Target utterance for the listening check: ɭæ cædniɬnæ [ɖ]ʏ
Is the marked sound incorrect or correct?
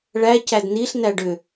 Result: correct